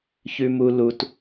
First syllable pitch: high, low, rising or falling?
low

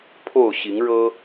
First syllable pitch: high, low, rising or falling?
falling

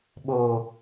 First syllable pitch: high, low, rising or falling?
low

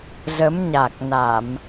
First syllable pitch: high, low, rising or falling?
rising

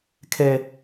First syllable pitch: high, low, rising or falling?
high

